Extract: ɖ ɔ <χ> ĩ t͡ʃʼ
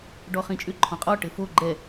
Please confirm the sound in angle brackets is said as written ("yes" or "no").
yes